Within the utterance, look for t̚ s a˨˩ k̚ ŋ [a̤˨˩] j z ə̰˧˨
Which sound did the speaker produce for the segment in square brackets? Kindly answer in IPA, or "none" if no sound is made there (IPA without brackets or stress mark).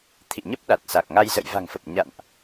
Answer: a˧